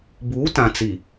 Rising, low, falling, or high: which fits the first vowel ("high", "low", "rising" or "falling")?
rising